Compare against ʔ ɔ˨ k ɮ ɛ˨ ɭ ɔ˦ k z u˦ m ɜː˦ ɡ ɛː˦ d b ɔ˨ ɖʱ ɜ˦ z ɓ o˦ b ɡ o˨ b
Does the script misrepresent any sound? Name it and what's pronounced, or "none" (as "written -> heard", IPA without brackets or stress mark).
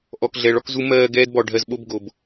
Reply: none